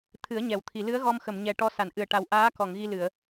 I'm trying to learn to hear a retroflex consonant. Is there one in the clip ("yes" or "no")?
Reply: yes